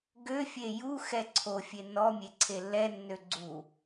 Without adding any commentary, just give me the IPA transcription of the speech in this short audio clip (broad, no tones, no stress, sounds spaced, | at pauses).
ɡ ø fʲ e j u x ɛ ǀʰ o fʲ e n ɔ mʲ e ǀʰ e lː ɛ nː ø ɡ͡ǀ u